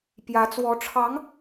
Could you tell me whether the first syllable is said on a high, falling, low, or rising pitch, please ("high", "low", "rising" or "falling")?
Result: rising